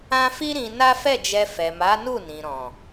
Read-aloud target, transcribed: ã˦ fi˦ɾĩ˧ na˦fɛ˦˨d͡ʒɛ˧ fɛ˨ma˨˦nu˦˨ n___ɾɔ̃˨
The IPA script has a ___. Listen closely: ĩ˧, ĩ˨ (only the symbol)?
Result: ĩ˨